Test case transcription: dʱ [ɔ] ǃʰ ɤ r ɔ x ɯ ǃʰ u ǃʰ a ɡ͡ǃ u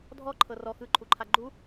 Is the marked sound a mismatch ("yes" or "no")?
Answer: no